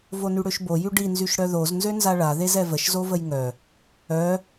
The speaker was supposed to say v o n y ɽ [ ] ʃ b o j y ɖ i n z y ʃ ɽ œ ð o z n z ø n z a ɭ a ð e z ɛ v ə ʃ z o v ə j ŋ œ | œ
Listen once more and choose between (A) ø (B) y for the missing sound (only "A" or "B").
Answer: A